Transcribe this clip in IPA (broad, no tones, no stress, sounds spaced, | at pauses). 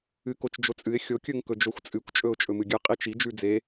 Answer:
ɨ k o t͡ʃ d͡ʒ o t͡sʼ ɨ ɪ̯ xʲ o kʲ ɵ ŋ k ɵ d͡ʒ o xʷ t͡sʼ ɨ kʷ t͡ʃʼ ɵ ʊ̯ t͡ʃʼ ɵ m ɨ ɡʲ ɨ qʼ i t͡ʃ i d͡ʒ ʉ d͡z e